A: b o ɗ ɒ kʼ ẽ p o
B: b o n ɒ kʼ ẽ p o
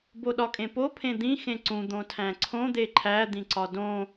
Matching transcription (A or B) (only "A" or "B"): A